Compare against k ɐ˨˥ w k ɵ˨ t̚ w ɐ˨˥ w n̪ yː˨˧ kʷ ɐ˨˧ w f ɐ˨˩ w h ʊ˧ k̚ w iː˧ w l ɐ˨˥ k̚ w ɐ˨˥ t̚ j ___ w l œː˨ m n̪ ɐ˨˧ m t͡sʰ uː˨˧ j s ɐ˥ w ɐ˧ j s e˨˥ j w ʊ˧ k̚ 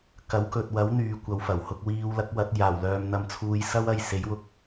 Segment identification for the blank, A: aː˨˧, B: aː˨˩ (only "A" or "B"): B